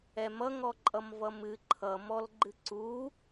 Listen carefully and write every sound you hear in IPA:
ɛ m ʌ ŋ ɔ ǃʼ ʌ m v ʌ m ɨ ǃʰ ʌ m ɔ l ɡ͡ǃ ɨ ǀ u

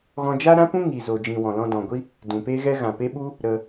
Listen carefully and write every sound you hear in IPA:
ɣ ɔ̃˧ d͡ʒ a˦ ɾ ã˦ p ũ˦ ŋ i˨ z o˨ d͡ʒ ĩ˨ w ɔ̃˨ l ɔ̃˧ d ɔ̃˨ ɡʷ i˦ | d ũ˨ p e˦ ɣ ɛ˦ ɣ ã˨ p e˦ ɓ u˦ | ɾ ə˧

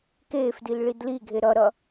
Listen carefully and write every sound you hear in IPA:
k eː f d i l ɭ i d l i ɡʱ e ɾ ʌ ɾ ʌ

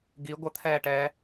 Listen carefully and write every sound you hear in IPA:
ɡ i ɡʷ ə t̪ʰ ɛː ʈ ɛː

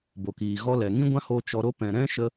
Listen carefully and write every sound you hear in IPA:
b o˨ k iː˨ ɣ ɔ˧ l ɛ˨ ŋ ĩ˦ ɡʷ ã˦ h o˧ t͡ʃ ɔ˧ ɾ o˦ p ɛ̃˨ ɾ ɛ̃˦ ʃ ə˧

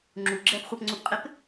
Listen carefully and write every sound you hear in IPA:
ŋ͡ǁ u ɡ͡ǁ ɛ p χʷ ə p ŋ͡ǀ u p qʼ ɪ p

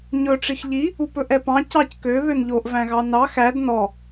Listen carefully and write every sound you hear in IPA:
ɲ ɵ ʈ͡ʂ i x ʎ i | u p ɵ ʔ ɛ p ɑ̃ c ɑ c k ø β ø n ʎ o ʔ v æ̃ ɣ ɑ n ɑ x æ d n ɔ

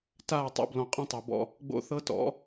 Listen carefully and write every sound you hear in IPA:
t aː˦˨ tˤ o̰˦ b l ɔ̃˨ qʼ ẽ˦ tˤ o˨ b ɔ̰˦ | ɡ͡b o̰˦ θ ɤ˦ t ɔ̰˨˦

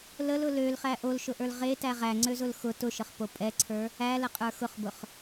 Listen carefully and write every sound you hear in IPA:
l ə l ʊ l ø l χ æ ʔ o l ʃ ʊ ʔ ə˞ l ʁ e t æ ʁ æ ŋ͡ǀ ø z ʊ l x ʊ t ʊ ʃ ə χ p o pʼ ɛ ǀʰ ə˞ | æ l ə qʼ ə˞ x ʊ χ b ʊ χ

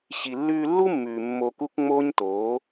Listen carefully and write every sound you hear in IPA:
ɕ i˨ lː ʉː˧ lː u˦ mː ʉː˨ mː o˧ k u˦ k ŋ͡m oː˦ ɲ t oː˨˦

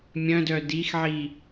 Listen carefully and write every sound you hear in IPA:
mʲ œ̃ d œ d i x ʕ i

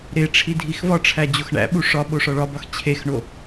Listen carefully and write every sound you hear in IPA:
ɾ e ʈ͡ʂʰ i dʱ i x v ɒ ʈ͡ʂʰ æ d͡ʑ o x ɳ æ̰ ɓ u ʂ ɒ ɓ o ʂ ɒ ɭ ɒ b ɒ x t͡ɕʰ e x ɳ o

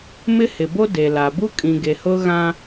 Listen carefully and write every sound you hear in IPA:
m ɪ˦ h ɪ˨ b o˦ d e˨ l a˨ b u˦ kʼ ĩ˨ ɡ e˨ h ʊ˦ ɣ ã˦

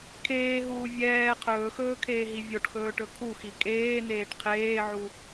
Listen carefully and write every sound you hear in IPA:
kʰ eː ɦ uː vʲ ɛː qʰ ɵː x ɵː kʰ eː ɦ i vʲ o ʈ x ɵː ʈ ɵ kʰ u x i kʼ eː n eː ʈ qʰ eː ʕ u

